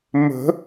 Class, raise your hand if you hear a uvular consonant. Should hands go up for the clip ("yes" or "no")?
no